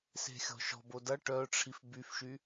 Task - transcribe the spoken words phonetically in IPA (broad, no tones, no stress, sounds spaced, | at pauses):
s e̤ xʲ ɔ̤ ʃ ɔ̤ b o d ɐ ʈ œ ʈ͡ʂʰ i f b y f ʃ y